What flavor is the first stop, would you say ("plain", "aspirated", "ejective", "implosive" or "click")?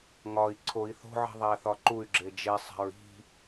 click